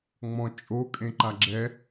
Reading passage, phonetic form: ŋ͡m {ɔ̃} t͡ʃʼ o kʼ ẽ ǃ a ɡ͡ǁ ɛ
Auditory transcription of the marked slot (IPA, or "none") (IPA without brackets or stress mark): ɔ̃